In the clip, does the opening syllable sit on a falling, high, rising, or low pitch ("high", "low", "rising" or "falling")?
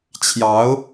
rising